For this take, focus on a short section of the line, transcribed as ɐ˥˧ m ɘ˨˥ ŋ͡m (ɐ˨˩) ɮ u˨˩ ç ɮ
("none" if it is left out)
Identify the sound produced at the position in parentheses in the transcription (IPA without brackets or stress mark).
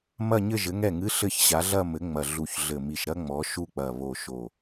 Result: ɐ˨˩